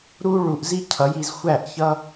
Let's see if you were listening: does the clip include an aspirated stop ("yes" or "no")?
yes